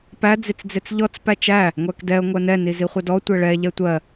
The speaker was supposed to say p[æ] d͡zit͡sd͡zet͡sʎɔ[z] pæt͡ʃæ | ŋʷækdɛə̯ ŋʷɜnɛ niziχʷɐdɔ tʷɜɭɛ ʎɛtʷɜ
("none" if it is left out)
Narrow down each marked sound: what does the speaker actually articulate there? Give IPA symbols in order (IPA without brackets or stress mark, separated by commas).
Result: æ, t͡s